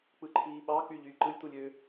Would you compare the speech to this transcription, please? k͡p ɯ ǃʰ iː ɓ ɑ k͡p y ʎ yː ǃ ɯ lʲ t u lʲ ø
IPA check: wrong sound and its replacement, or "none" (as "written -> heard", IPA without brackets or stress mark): none